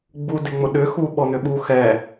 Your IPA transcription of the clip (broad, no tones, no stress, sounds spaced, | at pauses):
ɡ͡b u d e ŋ͡m ʊ ɗ ʏ x u ɓ ɔ n̪ ʏ ɓ uː x ɛ